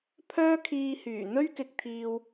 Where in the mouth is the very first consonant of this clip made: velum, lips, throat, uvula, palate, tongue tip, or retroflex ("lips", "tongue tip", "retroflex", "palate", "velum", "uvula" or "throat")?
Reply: lips